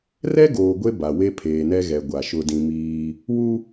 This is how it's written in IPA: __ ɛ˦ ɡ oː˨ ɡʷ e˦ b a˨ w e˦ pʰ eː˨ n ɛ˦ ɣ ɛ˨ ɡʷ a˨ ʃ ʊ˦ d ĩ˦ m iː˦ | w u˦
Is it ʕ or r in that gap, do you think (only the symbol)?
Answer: r